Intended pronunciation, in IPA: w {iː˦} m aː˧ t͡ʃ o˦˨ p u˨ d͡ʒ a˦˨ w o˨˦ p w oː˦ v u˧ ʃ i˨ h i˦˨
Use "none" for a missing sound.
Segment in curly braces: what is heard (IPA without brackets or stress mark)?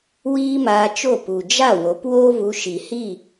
iː˦